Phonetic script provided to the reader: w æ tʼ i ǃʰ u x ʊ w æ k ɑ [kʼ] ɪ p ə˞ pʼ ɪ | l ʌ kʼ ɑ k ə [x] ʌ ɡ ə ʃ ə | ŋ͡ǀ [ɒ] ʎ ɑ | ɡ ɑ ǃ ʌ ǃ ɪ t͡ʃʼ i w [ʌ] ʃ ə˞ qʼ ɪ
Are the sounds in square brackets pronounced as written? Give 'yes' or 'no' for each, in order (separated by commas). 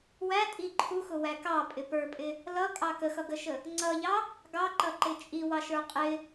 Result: no, yes, no, no